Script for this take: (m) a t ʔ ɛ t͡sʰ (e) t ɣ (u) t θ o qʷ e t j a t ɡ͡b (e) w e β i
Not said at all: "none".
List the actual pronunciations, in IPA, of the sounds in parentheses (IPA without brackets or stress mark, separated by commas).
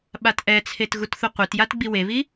ɓ, e, u, i